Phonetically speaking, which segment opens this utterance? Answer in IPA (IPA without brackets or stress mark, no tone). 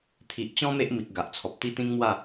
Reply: t̪ʰ